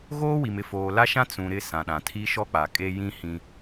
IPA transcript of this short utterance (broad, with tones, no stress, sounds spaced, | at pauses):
ɣ oː˦ w i˨ m ɪ˨ f oː˨ l a˦ ʃ ã˦ t͡s ũ˨ ɾ ɪ˦ s ã˨ ɗ ã˨ tʰ i˦ ʃ ɔ˦ k͡p a˨ kʼ e˦ j ĩ˦ h ĩ˦